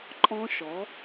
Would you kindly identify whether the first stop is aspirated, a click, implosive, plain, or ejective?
click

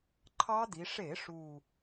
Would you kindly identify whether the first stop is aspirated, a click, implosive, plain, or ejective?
click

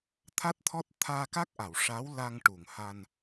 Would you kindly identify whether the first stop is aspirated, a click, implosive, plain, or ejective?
aspirated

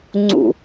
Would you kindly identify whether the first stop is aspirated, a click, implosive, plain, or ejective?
click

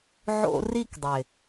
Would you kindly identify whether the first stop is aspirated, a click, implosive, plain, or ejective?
plain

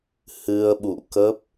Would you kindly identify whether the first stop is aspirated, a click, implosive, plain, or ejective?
implosive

